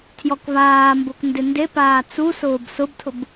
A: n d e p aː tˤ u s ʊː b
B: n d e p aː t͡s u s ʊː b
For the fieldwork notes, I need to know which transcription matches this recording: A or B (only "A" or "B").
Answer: B